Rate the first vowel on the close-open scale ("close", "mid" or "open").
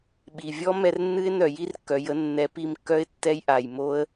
close